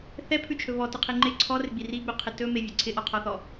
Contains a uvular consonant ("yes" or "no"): yes